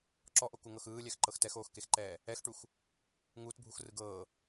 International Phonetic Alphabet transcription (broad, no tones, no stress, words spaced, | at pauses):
ǁɔʔokuŋɤx ɯːlʲɛxǃɤx tɛxoːxkexǃɛː | ɛxʈux | ŋuːtbʱuxrɯ ɡɤː